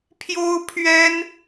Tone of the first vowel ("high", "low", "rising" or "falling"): high